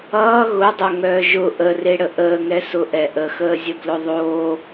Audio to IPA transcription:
ʌː ɣ ʊ dˤ o ŋ œː ʒ ʊ ʔ ə r e ɽ ə ʔ əː ŋ ɛ s ʊ ʔ ɛ ʔ ə x əː zʲ ə b l ʊ ðˤ oː

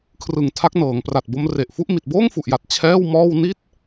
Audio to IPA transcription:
kʰ r ɯ˨˩ ŋ tʰ a˦˥ k̚ n ɤː˩˦ ŋ p r a˨˩ t̚ b o˦˥ m r e˨˩ ʔ f u˥˩ ʔ m i˨˩ t̚ b oː˥˩ ŋ f u˨˩ ʔ j a˨˩ t̚ t͡ɕʰ ɛː˥˩ w m ɔː˥˩ w n i˥˩ t̚

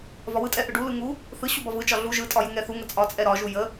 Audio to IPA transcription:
v ɒ w ɯ tʼ ɛ ʔ ɯ ɖ u l ɯ ŋ u | θ ɯ ɕ u b ɒ v ɯ t͡ʃ ɒ ɮ u ʒ ɯ tʼ ɒ j u ŋ ɛ θ u ŋ ə t͡sʼ ɒ t͡sʼ ɛ ɾ ɒ ʒ u j ə

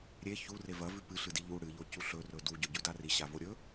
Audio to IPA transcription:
ɾʲ e ç u r e v ɐ v ʉ p ɨ ɬ ɨ d i ʎ u ɽ ɨ ʎ o c u ɬ ɵ r ɵ d u ɟ ɵ ɟ ʉ d a r i ɕ a v o ɾʲ ɵ

